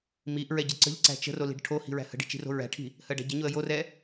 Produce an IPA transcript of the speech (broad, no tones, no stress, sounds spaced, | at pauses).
m i ʔ ɹ ɛ ɟ ə ǀ ə̤ ʎ ǀ æ̤ t͡ʃ ə̤ r o l i̤ ɖ ʈʰ o h i̤ ɹ æ̤ h ə̤ ɖ i̤ t͡ʃ i̤ r o̤ ɹ æ̤ ʈʰ i̤ | h ɜ ɖ æ̤ ɟ ə ɲ o ə̯ j o r ɛ